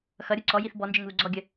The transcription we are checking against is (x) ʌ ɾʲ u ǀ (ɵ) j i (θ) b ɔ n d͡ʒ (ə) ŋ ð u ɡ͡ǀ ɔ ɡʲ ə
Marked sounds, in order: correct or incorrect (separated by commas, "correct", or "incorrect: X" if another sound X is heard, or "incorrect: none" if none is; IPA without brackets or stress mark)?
correct, incorrect: ɔ, correct, correct